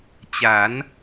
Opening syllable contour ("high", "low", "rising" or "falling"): rising